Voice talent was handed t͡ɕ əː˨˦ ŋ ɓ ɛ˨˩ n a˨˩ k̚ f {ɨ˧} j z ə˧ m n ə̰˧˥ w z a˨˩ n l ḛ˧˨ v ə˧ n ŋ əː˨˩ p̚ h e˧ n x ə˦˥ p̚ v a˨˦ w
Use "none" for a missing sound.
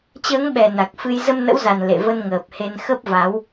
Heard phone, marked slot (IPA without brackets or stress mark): ɨ˧